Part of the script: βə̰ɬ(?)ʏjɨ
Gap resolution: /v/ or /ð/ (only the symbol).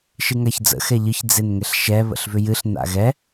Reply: v